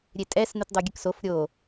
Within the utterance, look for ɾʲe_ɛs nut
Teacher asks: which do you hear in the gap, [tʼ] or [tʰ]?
tʼ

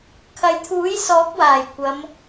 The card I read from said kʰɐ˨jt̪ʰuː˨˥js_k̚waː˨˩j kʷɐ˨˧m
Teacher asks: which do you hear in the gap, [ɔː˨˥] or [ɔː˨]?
ɔː˨˥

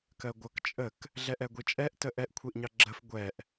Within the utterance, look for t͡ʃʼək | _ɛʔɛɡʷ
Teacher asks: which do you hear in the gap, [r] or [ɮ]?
ɮ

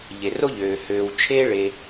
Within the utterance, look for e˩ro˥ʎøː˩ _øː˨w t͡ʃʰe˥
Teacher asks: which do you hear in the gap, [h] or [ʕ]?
h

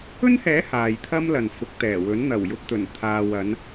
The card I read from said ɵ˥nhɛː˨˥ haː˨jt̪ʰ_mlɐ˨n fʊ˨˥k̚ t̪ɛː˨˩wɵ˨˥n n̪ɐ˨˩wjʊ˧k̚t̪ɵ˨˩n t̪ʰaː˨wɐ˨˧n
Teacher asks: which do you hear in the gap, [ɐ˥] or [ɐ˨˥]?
ɐ˥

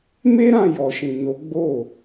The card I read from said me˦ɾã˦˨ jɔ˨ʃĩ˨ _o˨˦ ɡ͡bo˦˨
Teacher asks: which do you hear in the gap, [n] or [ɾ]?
n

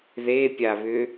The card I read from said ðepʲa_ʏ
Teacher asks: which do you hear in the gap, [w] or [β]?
β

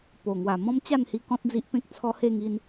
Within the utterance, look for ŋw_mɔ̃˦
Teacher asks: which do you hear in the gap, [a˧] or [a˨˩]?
a˨˩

